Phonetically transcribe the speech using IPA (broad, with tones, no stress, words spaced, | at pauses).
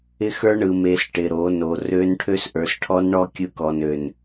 ɪ˦xə˞˦ ɳɯ˨me˨s ʈɪ˨ɾo˨˦no˨ rø˦n ʈʰø˦sʔə˞˨sʈʰɔ˦nɳɔ˦ kʲɯ˦kɔ˨nø˨n